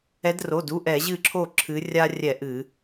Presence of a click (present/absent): present